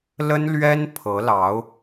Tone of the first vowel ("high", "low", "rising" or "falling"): high